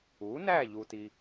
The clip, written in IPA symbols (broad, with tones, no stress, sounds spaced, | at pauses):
u˩˥ n æ˥˨ ʎ u˨ t i˨